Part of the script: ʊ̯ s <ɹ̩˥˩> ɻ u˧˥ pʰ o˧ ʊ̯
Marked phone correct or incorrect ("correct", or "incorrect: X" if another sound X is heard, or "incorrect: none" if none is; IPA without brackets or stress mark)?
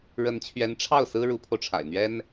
incorrect: ɹ̩˥